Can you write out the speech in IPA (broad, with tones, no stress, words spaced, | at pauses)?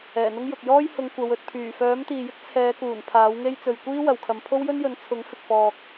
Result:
ɛː˨˩n̪ʊ˥ŋjʊ˨k̚ jɔː˥jhʊ˨˧ŋ kʷɐ˨˧wɵ˧t̚ pʰyː˨˩fœː˨˥mt̪iː˨jɪ˥k̚ t͡sʰɛː˨˧kuː˨˩n pʰaː˨˥wŋe˥jt͡sɵ˨ɥ kʷiː˥ wɐ˨wkʰɐ˨m pʰo˥wjɵ˥njɵ˨˥n t͡sʰʊ˨˥ŋ fɪ˨k̚fɔː˨k̚